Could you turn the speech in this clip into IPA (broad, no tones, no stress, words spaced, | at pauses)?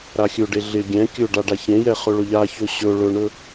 ɾaxʲɵɖe ɮɪ ɡʲɛ̃ kʲɵɖa ɖaçẽjɛ χɵɭɵʎaçɵ ɕɵ ɭɵɳɵ